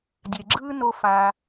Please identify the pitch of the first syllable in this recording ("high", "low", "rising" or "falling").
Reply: low